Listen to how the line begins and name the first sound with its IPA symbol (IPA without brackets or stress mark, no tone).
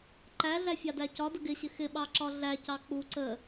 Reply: ǃ